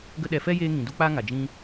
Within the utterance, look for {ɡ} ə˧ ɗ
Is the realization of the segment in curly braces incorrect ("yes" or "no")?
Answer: no